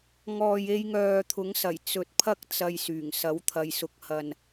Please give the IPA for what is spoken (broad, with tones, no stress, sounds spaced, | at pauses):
ŋ ɔː˨ j e˧ j ŋ œː˨ t̪ʰ ʊ˨˥ ŋ s ɐ˨˩ j t͡s ɵ˨ t̚ pʰ ɐ˥ k̚ t͡s ɐ˧ j s yː˨˩ ŋ s ɐ˨˥ w t̪ʰ ɐ˨˧ j s ʊ˨ k̚ h ɐ˨ n